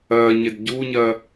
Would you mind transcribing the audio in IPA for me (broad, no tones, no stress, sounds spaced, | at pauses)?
ɜ ɲ ɪ d ɟ u ɲ ɜ